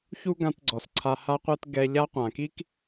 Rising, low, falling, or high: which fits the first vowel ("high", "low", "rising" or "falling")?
high